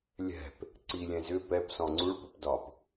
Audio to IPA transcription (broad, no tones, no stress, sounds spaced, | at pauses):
lʲ ɛ̤ p | ǀ i lʲ ɛ̃ z ʏ p ɛ p s ɔ̃ ŋ͡ǀ u ɭ p u p d ɒ p